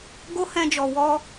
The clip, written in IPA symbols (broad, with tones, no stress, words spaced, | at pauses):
ɡo˦hɛ̃˧d͡ʒɔ˨ wɔ˧